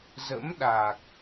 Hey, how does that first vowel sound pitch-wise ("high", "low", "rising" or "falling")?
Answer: rising